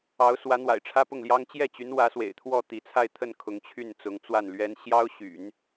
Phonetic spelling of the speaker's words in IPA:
ɑ˧˥ ʊ̯ s w ä˧˥ n̪ w a̰˨˩ ɪ̯ ʈ͡ʂʰ ä˥ p ʊ˥˩ ŋ l j ɑ˥ ŋ t͡ɕ j ɛ˥˩ t͡ɕ y˧˥ n w ä˧˥ s w ḛ˨˩ ɪ̯ t̪ʰ w ɔ˥˩ t̪ i˧˥ t͡sʰ a˥˧ ɪ̯ t̪ʰ ə˥˩ n kʰ ʊ˧˥ ŋ t͡ɕʰ y˥˩ n t͡s ʊ˧˥ ŋ t͡s w a˥˩ n l ɥ ɛ˥ n ɕ j ɑ˥ ʊ̯ ɕ y̰˨˩˦ n

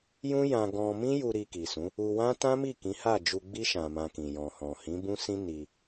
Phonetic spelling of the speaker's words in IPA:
j ũ˦ j ã˧ ɡ ɔ̃˧ m ĩ˦ j u˧ ɾ i˧ k i˨ s ũ˨˦ | u˧ w ã˦ t ã˦ m i˦˨ k ĩ˨˦ h a˦˨ d͡ʒ u˧ ɡ͡b i˦ ʃ ã˧ m ã˧ k ĩ˨ j ɔ̃˨ h ɔ̃˨ h ĩ˨˦ b ũ˦ s ĩ˦ n i˧

